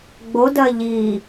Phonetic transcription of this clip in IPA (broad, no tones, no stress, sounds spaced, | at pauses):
ɡ͡b o d ɜ ʎ i